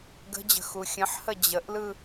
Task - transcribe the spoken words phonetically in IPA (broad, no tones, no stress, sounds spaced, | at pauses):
ɡ ə̤ d͡ʑ ə̤ x u xʲ ə̃ ħ h ə d͡ʑ ə ʔ l ɯ